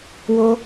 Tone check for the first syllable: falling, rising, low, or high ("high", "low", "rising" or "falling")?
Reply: high